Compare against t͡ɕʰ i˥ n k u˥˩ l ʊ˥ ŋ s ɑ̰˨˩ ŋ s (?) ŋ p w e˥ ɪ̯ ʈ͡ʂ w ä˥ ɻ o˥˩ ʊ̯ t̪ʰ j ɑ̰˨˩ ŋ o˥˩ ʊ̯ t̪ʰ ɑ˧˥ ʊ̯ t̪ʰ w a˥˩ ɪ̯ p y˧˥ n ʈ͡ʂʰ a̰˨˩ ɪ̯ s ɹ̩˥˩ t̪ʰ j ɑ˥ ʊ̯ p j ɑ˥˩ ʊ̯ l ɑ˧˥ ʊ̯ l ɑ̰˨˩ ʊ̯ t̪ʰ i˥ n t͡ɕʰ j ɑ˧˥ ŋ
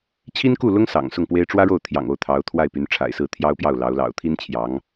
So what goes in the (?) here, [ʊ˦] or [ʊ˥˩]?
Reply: ʊ˥˩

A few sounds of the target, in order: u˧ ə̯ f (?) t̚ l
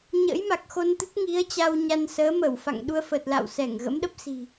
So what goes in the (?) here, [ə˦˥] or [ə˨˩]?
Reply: ə˨˩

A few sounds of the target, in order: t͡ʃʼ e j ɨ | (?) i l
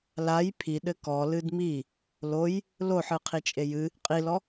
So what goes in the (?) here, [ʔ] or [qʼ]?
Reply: qʼ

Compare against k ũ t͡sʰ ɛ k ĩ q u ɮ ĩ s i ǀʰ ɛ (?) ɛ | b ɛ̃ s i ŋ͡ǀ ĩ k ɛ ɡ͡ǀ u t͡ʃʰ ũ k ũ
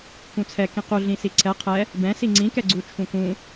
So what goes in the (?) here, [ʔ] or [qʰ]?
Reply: qʰ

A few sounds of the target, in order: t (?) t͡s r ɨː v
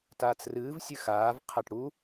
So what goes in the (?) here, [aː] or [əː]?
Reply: aː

